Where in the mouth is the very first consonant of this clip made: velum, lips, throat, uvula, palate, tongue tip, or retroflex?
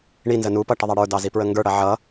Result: retroflex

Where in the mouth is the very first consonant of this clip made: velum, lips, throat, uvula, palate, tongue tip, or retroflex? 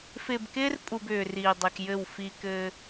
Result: lips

